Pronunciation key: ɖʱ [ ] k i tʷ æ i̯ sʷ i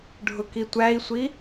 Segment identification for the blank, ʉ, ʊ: ʊ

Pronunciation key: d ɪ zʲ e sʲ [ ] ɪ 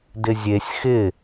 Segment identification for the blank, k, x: x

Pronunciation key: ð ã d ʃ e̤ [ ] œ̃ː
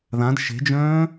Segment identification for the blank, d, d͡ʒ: d͡ʒ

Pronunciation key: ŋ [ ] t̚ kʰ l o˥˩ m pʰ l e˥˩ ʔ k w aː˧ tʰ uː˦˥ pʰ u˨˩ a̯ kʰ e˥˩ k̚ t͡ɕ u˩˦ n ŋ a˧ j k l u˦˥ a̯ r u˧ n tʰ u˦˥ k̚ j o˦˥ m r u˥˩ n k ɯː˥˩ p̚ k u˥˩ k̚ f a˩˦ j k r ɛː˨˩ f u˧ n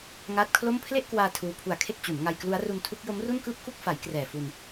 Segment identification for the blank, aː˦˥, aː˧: aː˦˥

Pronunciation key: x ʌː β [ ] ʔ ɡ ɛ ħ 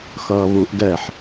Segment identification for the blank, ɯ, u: u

